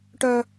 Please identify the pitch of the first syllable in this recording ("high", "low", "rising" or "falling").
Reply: high